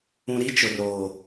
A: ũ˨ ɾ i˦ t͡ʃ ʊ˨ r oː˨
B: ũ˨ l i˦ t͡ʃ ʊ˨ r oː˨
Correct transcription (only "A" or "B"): A